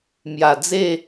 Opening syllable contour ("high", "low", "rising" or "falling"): low